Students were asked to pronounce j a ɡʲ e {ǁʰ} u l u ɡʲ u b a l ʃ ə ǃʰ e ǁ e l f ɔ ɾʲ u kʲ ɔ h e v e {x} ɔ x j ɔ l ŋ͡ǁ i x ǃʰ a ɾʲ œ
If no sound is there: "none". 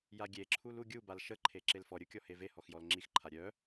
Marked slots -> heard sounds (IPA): ǁʰ, h

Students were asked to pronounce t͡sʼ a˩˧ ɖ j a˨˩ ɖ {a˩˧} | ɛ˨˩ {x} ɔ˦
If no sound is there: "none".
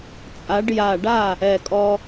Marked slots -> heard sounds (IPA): a˥˩, kʼ

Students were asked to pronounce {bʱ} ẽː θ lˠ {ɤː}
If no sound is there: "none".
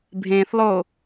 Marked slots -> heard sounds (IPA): bʱ, oː

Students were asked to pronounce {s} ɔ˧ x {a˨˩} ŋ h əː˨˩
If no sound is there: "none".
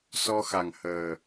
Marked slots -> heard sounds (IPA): s, a˨˩

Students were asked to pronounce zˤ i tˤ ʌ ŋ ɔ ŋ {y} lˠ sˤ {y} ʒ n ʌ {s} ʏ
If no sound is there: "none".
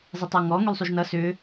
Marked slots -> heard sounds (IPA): y, y, s

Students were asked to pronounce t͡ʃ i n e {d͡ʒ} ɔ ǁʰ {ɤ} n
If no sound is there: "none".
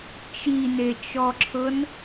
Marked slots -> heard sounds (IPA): t͡ʃ, ɤ

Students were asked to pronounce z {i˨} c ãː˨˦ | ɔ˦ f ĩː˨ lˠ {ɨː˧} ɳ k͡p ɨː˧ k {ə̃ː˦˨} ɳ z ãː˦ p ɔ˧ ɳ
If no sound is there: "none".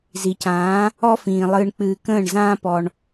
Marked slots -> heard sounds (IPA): i˨, ɨː˧, ə̃ː˦˨

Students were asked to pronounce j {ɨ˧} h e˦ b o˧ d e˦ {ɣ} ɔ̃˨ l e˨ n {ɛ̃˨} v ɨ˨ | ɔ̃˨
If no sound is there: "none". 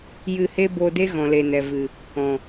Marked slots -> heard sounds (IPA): ɨ˧, ɣ, ɛ˨

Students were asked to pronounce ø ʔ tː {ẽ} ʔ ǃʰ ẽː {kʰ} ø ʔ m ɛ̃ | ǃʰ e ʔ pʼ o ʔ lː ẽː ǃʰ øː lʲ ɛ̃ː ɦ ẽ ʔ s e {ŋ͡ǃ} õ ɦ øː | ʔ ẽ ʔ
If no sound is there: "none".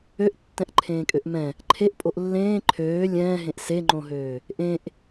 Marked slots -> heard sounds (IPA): ɛ̃, kʼ, ŋ͡ǃ

